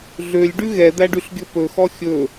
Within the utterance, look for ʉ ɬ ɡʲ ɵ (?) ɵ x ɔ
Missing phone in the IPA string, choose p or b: p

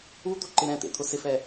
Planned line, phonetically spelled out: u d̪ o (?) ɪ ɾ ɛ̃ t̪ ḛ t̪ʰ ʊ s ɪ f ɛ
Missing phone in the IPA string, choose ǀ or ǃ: ǃ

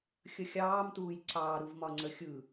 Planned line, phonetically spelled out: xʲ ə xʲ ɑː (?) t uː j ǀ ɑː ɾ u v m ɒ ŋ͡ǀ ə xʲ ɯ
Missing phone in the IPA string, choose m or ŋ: m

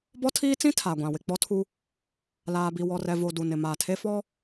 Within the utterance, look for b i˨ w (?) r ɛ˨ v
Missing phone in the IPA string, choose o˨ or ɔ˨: ɔ˨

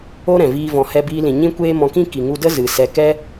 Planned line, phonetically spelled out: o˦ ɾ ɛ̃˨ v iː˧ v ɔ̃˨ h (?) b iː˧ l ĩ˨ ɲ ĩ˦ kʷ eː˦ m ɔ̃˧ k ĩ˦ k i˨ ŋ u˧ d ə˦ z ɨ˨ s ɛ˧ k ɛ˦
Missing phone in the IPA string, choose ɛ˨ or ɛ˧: ɛ˧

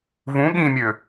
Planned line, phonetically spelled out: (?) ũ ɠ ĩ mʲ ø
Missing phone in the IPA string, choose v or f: v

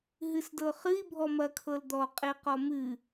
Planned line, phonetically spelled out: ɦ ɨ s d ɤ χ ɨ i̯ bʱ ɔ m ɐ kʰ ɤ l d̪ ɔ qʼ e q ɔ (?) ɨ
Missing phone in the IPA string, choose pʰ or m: m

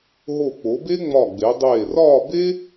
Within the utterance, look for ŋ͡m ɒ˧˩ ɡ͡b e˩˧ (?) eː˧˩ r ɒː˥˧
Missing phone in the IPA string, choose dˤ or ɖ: dˤ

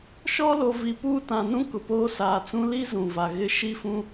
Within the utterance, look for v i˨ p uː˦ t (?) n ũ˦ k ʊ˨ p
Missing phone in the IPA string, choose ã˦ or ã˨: ã˨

